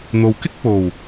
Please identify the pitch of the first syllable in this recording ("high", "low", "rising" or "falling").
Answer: low